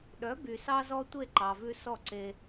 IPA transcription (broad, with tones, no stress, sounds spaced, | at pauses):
ɗ œ˩˥ b y˩ s ɑ˧ z ɔ˧ tʷ e˥˩ ǃ ɑ˩ v ʉ˧ s ɔ˥˩ ǀ e˧